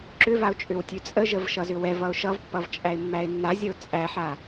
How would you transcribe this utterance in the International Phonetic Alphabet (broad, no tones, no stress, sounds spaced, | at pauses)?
ǁ ʏ v a ʊ̯ t͡ʃʼ ʏ w tʲ ʉ t͡sʼ ə ʒ ə v ʃ ʌ z ʏ w ɛ v ʌ ʊ̯ ʃ ʌ v pː ʌ v t͡ʃʼ æ ɪ̯ mː æ ɪ̯ nː a zʲ ə ʊ̯ t͡sʼ æ ħ a